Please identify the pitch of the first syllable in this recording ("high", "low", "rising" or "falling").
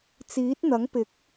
rising